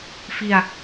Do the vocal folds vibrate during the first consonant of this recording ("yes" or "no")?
no